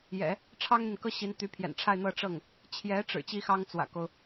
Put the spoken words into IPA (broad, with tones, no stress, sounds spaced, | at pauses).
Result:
j ɛ̰˨˩˦ | ʈ͡ʂʰ ɑ˥ ŋ n̪ i˨ n k ɤ˥ ɕ i˧˥ n t̪ y˧˥ pʰ j ɛ̰˨˩ n ʈ͡ʂʰ a˥˧ ɪ̯ n̪ ɤ˥˧ ʈ͡ʂ ɤ˥˩ ŋ | t͡ɕʰ j ɛ˧˥ ʈ͡ʂ ɻ̩˨˩ t͡ɕ i˥ x ɑ˥ ŋ t͡s w ä̰˨˩ k o˦ ʊ̯